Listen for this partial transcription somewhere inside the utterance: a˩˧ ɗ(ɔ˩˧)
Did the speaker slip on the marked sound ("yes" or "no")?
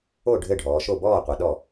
yes